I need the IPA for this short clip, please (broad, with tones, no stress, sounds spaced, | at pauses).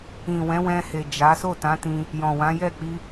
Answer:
ĩ˨ w ɛ̃˨˦ w ɛ̃˧ h e˨ d͡ʒ a˨˦ s o˦˨ t ã˨˦ t ĩ˧ | j ɔ̃˨ w ã˨˦ j ɛ˦˨ k͡p i˧